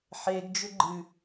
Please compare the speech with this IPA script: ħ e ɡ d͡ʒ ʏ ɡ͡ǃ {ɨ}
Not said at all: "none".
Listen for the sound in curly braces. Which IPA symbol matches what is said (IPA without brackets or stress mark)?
ɨ